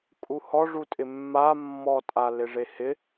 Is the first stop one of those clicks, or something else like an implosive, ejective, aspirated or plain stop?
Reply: ejective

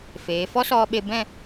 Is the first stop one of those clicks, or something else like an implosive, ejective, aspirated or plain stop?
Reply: implosive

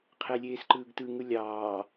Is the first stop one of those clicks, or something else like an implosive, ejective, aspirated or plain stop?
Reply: aspirated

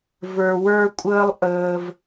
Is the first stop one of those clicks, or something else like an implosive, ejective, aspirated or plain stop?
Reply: ejective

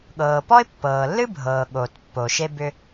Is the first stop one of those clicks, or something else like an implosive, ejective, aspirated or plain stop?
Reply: implosive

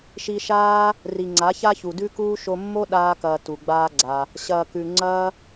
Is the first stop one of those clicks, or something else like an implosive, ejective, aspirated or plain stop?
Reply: click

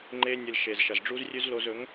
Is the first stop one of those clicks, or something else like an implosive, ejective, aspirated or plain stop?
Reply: click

